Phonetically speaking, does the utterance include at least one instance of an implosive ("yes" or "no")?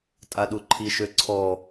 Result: yes